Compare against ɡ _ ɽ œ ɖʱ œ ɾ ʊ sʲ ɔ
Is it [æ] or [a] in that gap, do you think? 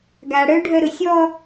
a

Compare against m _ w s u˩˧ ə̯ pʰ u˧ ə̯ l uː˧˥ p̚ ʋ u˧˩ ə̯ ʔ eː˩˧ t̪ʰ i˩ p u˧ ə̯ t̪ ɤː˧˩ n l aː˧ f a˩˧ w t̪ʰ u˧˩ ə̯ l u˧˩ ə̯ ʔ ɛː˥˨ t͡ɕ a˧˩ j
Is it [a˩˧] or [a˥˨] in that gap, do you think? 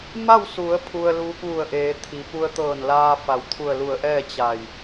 a˥˨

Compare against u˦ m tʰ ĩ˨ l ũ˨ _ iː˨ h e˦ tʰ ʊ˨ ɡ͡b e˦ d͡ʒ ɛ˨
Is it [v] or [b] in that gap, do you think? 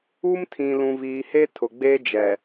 v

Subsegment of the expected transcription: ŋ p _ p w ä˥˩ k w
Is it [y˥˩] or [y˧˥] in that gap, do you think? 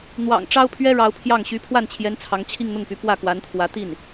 y˧˥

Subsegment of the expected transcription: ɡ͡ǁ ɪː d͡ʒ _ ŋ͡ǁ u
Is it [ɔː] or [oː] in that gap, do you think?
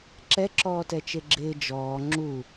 ɔː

